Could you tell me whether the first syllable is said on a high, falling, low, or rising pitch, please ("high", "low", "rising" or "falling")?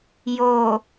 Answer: low